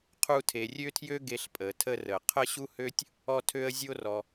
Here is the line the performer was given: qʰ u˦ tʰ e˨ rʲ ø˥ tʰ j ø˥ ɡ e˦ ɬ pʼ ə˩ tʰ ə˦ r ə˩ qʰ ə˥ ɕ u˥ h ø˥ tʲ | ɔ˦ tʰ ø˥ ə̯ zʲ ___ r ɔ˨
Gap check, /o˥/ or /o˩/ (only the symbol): o˥